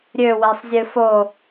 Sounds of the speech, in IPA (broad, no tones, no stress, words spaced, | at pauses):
ɾʲøwesˤzʲɨ fo